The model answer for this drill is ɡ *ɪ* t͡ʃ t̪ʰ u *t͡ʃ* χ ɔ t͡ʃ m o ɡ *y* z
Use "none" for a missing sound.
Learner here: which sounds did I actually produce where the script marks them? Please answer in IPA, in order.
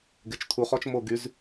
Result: ɪ, none, y

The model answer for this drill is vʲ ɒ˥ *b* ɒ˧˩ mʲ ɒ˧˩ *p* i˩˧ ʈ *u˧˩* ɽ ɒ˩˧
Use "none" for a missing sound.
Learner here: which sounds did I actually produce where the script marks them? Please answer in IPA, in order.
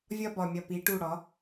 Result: b, p, u˧˩

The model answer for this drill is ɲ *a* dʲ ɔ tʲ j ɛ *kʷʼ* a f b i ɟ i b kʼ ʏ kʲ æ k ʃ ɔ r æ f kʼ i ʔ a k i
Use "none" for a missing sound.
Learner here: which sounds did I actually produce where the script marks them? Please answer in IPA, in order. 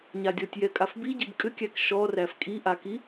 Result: a, kʼ

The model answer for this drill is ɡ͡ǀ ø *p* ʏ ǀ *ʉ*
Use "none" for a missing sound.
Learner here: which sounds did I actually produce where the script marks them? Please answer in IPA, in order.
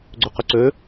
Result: q, ø

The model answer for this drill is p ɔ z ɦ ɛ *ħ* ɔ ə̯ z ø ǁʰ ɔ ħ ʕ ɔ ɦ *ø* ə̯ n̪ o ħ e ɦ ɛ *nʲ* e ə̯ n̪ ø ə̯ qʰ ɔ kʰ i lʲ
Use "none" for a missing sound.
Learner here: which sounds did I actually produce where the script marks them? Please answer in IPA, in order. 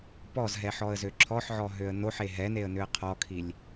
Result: ħ, ø, n

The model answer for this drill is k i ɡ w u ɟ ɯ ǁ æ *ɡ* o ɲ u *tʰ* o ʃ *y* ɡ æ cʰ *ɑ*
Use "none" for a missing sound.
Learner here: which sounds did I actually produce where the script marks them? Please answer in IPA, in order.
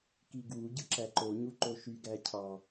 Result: ǃ, ǃ, y, ɑ

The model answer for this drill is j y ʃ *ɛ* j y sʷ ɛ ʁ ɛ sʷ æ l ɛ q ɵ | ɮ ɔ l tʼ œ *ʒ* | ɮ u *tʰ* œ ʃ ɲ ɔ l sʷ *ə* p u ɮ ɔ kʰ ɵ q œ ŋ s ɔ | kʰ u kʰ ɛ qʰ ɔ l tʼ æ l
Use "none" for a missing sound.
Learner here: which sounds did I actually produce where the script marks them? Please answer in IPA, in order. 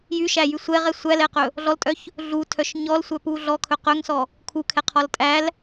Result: æ, ç, tʰ, œ

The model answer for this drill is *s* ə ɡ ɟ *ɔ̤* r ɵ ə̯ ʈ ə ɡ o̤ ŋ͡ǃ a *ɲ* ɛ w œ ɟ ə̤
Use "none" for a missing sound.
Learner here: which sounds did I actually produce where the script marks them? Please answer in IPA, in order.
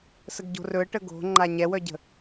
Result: s, o̤, ɲ

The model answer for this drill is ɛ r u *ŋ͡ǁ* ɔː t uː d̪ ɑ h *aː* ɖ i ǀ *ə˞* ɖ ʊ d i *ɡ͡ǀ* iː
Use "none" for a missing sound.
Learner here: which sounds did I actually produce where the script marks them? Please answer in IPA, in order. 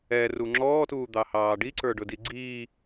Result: ŋ͡ǁ, ɑː, ə˞, ɡ͡ǀ

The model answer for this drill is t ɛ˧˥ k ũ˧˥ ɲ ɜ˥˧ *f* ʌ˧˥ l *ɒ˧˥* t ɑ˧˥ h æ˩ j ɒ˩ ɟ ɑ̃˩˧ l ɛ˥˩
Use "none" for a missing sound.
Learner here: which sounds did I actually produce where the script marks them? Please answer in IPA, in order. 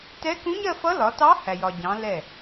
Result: f, ɒ˩˧

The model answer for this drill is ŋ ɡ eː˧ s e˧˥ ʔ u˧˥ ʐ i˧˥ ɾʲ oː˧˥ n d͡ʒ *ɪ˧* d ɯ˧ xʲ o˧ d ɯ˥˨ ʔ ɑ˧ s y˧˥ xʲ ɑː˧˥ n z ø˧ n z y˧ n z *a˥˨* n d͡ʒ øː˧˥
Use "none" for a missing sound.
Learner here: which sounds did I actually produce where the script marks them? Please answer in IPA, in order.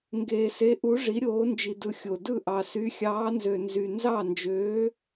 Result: i˧, ɑ˥˨

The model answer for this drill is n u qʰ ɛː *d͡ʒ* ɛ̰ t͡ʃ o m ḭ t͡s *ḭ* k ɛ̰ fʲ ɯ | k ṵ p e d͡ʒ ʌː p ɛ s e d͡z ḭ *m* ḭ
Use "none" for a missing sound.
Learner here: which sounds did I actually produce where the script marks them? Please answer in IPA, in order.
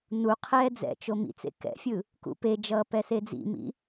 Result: d͡z, ḛ, m

